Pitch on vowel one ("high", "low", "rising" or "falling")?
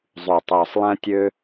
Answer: low